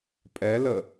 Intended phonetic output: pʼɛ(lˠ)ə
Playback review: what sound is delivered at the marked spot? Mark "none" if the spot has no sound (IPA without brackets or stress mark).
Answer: l